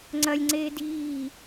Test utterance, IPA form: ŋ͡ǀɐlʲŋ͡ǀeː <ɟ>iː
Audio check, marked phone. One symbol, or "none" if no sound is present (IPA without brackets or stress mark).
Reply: d